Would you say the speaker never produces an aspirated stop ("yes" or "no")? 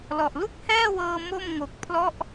no